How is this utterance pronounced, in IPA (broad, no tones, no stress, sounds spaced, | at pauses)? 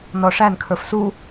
n ɔ ʂ æ n kʰ ə˞ f s u